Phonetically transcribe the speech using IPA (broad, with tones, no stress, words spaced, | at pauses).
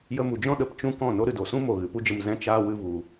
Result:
jə˧mu˨d͡ʒɔ̃˦ ɗə˧pt͡ʃũ˦kɔ̃˦˨ no˦ ɾɨ˨do˨sũ˦ mo˨ ɣɨ˨pu˦d͡ʒə˧m zɛ̃˦t͡ʃaː˦ wɨ˧ vu˨